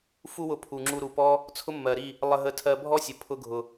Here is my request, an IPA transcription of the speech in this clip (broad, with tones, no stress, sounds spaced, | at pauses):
f u˦ w ʊ˧ pʰ u˨ ŋ͡ǁ u˧ ɾ u˨ p ɔ˦ | t͡sʰ ʊ˦ mː ɜ˨ ɾ i˦˨ | lˠ ə˧ ɦ ə˧ tʰ ɜ˧ bʱ ɔ˦ sʲ ə˨ pʰ ʊ˧ ɡʱ ʊ˨